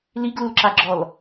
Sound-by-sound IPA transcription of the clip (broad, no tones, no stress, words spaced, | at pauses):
liɡlulǁaɡ͡ǁɔl